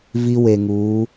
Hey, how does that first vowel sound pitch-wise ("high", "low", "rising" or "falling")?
high